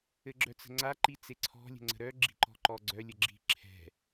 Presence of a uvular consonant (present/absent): absent